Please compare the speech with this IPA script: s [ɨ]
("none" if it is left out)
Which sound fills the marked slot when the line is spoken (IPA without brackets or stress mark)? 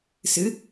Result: ɨ